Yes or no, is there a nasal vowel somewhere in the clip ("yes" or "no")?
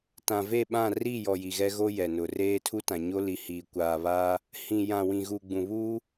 yes